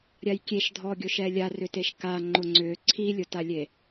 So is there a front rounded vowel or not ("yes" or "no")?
yes